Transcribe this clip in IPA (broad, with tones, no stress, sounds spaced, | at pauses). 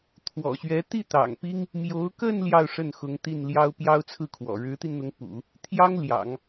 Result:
t̪ʰ w ɔ̰˨˩ ɕ ɥ ɛ˧˥ t̪ i˥˩ t̪ ɑ̰˨˩ ŋ p i˥ ŋ | m j o˧˥ ʊ̯ k ə˥˧ n l j ɑ˥˧ ʊ̯ ʂ ə˥˩ n x ʊ˧˥ ŋ t̪ i˥˩ n l j ɑ˥ ʊ̯ p j ɑ˥ ʊ̯ t͡sʰ ɹ̩˥˩ kʰ w ɔ̰˨˩ ɻ ɻ̩˧˥ t̪ i˧ n n̪ ʊ˧˥ ŋ p ṵ˨˩˦ | t̪ʰ j ɑ˥ ŋ l j ɑ̰˨˩˦ ŋ